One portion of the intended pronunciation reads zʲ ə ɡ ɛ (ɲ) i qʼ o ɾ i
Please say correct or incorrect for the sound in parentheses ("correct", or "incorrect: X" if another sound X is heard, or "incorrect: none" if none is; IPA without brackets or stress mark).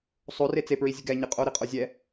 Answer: correct